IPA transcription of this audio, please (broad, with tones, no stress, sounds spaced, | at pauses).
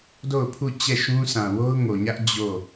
d o˦˨ ʊ̯ pʰ u˦˨ t͡ɕ ɛ˦˨ ʃ ũ˦ sʰ ã˨ w o˦ ʊ̯ ŋ o˨ ɲ ä˦ ʔ d͡ʑ o˦˨